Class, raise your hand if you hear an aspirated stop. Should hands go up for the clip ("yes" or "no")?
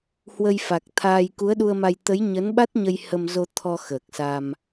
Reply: yes